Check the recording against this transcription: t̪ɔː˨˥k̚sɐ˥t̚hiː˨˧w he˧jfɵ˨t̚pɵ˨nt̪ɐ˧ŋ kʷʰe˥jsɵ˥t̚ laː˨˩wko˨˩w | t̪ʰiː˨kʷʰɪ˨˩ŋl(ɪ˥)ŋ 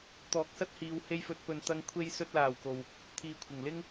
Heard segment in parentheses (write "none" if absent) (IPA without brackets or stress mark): ɪ˥